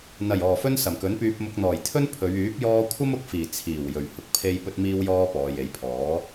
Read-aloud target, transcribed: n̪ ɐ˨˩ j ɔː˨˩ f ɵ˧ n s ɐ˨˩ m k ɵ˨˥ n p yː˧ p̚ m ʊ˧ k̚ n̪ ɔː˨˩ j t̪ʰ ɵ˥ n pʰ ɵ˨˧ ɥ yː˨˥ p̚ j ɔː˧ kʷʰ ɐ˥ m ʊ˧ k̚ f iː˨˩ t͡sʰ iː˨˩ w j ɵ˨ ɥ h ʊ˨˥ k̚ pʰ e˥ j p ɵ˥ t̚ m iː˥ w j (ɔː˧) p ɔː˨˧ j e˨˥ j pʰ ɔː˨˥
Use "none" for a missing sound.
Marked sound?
ɔː˥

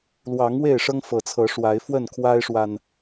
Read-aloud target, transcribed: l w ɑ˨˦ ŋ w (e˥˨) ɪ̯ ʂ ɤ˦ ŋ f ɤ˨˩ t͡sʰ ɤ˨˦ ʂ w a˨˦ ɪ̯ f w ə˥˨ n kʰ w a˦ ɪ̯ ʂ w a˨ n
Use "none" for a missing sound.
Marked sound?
e˥˨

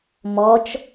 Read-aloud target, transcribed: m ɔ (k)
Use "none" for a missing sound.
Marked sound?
t͡ʃ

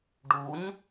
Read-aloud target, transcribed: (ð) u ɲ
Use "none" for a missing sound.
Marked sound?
ɖ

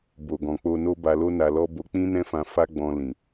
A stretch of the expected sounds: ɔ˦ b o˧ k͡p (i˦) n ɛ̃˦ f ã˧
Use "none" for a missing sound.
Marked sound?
ĩ˦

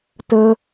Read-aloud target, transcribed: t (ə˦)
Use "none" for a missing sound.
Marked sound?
ə˦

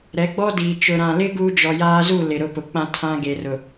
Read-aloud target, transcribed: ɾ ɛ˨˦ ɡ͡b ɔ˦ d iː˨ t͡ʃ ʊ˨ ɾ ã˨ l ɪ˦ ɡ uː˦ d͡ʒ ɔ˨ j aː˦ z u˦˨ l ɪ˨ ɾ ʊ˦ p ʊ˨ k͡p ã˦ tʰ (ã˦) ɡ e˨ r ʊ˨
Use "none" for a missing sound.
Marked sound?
ã˦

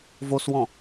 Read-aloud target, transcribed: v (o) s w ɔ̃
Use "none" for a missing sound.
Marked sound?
o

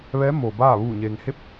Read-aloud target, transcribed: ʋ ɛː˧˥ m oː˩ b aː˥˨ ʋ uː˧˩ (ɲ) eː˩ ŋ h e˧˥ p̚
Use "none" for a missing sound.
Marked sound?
ɲ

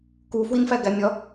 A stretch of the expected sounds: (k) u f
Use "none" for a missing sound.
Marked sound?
k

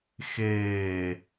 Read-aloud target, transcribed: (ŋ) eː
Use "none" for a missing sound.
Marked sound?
x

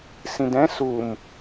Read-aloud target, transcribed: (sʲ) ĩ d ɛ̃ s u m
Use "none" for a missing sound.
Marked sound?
s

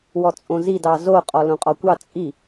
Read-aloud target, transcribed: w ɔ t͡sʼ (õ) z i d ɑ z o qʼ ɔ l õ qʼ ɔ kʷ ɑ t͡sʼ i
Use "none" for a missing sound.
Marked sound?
õ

